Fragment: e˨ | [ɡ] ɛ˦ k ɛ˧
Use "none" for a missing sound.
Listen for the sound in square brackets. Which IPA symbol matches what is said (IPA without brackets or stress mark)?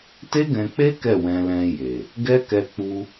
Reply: ɡ